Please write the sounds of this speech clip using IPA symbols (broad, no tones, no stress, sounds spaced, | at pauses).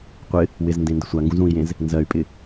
qʷ ɪ | w ɪ z n d ẽ n d ɪ sʷ a ŋ ɡ ũ z ũ i̯ j ẽ z | n z ɜ y̯ pʼ ɪ